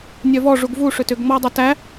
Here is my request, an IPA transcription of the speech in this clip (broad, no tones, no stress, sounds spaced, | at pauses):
nʲ œ v ɔ ʐ u ɡ v u ʂ ʏ t ʏ ɡ ŋ͡m ɔ dˤ œ t æ